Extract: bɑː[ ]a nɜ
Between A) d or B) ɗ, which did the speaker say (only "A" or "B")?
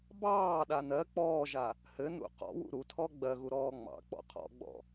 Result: B